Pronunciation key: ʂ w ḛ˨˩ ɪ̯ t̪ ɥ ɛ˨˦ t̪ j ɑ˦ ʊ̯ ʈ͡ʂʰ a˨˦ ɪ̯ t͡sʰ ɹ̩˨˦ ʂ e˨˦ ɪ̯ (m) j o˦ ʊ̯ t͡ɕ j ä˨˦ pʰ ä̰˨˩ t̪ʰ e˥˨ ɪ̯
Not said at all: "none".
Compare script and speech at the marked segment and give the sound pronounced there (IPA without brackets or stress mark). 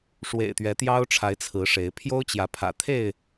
pʰ